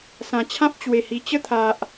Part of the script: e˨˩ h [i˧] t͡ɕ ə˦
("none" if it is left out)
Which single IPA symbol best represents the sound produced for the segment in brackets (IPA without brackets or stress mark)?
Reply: i˨˩